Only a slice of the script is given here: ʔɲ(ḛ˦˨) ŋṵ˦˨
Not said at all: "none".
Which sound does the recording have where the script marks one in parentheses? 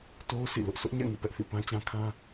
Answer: ɛ̰˦˨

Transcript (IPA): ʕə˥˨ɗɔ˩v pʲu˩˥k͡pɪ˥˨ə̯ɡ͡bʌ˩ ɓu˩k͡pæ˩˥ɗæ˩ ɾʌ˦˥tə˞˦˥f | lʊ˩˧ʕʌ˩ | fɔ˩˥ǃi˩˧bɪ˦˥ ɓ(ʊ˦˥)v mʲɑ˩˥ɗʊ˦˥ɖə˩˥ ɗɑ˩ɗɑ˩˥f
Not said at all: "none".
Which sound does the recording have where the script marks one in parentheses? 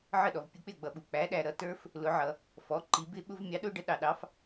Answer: ʊ˦˥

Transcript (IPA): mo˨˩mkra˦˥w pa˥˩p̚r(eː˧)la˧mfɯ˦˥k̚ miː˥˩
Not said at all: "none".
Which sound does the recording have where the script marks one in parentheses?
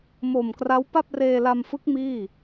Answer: eː˧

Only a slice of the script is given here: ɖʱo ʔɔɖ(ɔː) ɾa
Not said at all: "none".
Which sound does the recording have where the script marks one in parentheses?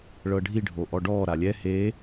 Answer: ɔː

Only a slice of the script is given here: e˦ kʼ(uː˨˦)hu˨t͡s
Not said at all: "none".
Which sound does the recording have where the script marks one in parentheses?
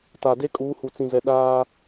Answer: uː˨˦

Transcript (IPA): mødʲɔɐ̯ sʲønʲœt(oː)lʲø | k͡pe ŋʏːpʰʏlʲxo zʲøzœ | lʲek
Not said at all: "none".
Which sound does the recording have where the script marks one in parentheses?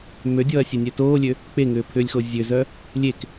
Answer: oː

